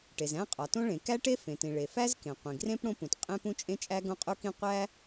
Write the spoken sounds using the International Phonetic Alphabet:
ʈ e˩ z æ̃˥ qʼ ɒ˩ t õ˥ ɭ ẽ˩ k æ˥ ʈ e˥ f ẽ˩ t ĩ˩ ɭ e˩ f æ˥ z k ẽ˩ qʷ ĩ˩ ɡ r ẽ˥ p ɽ õ˥ p ũ˩ t qʼ ẽ˥ p ũ˥ t͡ʃʼ ẽ˥ t͡ʃʼ æ˥ ɡ õ˥ qʼ u˥ k ĩ˥ qʷ æ˥

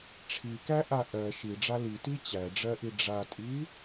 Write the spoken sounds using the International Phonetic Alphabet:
ʈ͡ʂʰ i k æ ʔ a ʔ ɜ ʃ i ɖ͡ʐ a l i t i t͡ɕ æ ɖ͡ʐ ɜ ʔ i ɖ͡ʐ a tʼ i

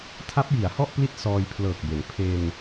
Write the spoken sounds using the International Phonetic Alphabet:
tʰ a˦˥ p̚ j i˩˦ a̯ h ɔ˥˩ ʔ p l i˦˥ t̚ s ɔː˧ j pʰ l ɤː˨˩ k̚ b e˩˦ n pʰ e˧ n

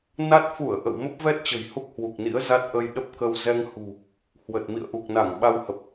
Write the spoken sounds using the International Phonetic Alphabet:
n a˦˥ t̚ f u˧˩ ə̯ ʔ ə̰˧˨ w m ə˦˥ p̚ v ɛ˦˥ t̚ t͡ɕ ə̤˨˩ j h u˦˥ k̚ h w u˨˩ k̚ n ḭ˧˥ ə̯ z a˦˥ t̚ ʔ ə˧ j ɗ ə˦˥ p̚ k ə˧ w z ɛ˧ ŋ h ṳ˨˩ | h w ə˨˩ t̚ m ḭ˧˨ ə̯ ʔ u˨˩ k̚ n a˧˩ ŋ ɓ a˧ w h ə˨˩ p̚

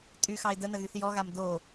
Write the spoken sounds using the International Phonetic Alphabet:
tʼ y x ɑ ɪ̯ d ə n ə ɣ y θ j ɔ ɣ a m d o

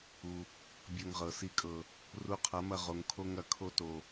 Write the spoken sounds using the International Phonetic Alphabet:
u˨ | bʲ ɤ˧ ŋ ʁ ɤ˨ s i˧ kʼ ɤ˨ | r u˧ qʰ ɐ˨˦ m ɐ˧ ʁ o˨ ŋ kʰ o˦ ŋ ɐ˨ kʰ o˦ t o˨

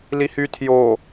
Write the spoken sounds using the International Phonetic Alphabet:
l i h y tʰ j o

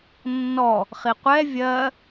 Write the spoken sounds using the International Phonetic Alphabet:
nː ɔ | χ i qʷ ɛ vʲ ɜ

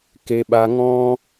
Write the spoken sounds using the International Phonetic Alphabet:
k e˧ ɓ a˧ ŋ ɔ̃˦

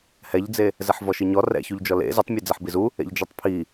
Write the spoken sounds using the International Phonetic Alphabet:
h ɛ ʎ d͡z e | z ɛ ħ v ɔ ʃ i ɲ ɔ r ɛ̰ ç u ʎ d͡ʒ ɔ l ḛ z i tˤ mʲ ɛ d͡z ɛ ħ b i z u | ḛ ʎ d͡ʒ ɔ tˤ pʰ i

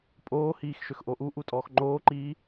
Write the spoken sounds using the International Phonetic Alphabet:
pʼ oː h iː x ʃ ø x ʔ o ʔ u ʔ u tʼ ɔː x ŋ͡ǃ oː ǃ iː

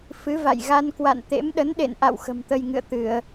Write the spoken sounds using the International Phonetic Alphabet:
f ɨ˨˦ v a̰˧˨ j ɣ a˧ n k w a̰˧˨ n t̪ ḛ˧˥ m ɗ ə˨˦ n ɗ ḛ˧˨ n ʔ a̰˧˨ w x ə̤˨˩ m t̪ ə˧ j ŋ ɨ̰˧˨ ə̯ t̪ ɨ˧˩˨ ə̯

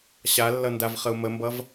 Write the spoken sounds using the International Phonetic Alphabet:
ɕ a lː ʌ n d a v χ ə u̯ m ə m b ʌ v

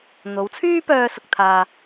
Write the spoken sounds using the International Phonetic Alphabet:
n̪ o˨˧ w t͡sʰ yː˥ p œː˧ s ʊ˧ k̚ t̪ʰ aː˧

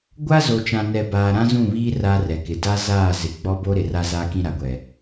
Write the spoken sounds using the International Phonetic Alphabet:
ɡʷ a˦ z o˨ t͡ʃ ã˨ n ɛ˨ b aː˨ ɾ ã˦ z ũ˦˨ β iː˦ r a˦ r ɛ˨ k ɪ˨ d a˦ z aː˦˨ z ɪ˨ ɡ͡b ɔ˦ b o˦ ɾ ɪ˨ r a˦ z aː˦ k ĩ˦ ɾ a˨ ɡʷ ɛ˨

